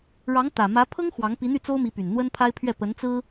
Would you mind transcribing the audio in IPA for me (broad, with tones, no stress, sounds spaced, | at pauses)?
ɻ ɑ˧˥ ŋ t̪ ä˨˩ m ä˧˥ pʰ ɤ˥ ŋ x w ɑ˧˥ ŋ p i˧˥ n̪ y˥˩ t͡s o˥ ʊ̯ m i˧˥ p y˨˩ n n̪ w ə˥ n pʰ a˥ ɪ̯ pʰ ɥ ɛ˥˩ p ə˧˥ n t͡s ɹ̩˥